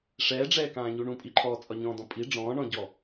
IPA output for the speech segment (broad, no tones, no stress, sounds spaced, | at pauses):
ʂ ɛː ɖ͡ʐ ɛː k ãː ɲ u ɳ ũ pʼ i ǃʰ ɔː t͡sʼ ɒ ɲ ɔ̃ː d ɔ̃ pʼ i ɖ͡ʐ ɔ̃ː ɳ ɔ̃ ɟ ɔ